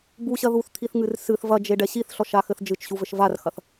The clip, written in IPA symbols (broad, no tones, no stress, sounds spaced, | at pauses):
b u ɕ ɐ ð u θ t̪ʰ i θ ŋ ɨ r s ɨ θ v ɐ d͡ʒ e ɖ ɛ ɕ i θ ɬ ɔ ʃ a x ɘ θ d͡ʒ ɨ t͡ʃ ɕ u v ɘ ʃ v a r x ɐ θ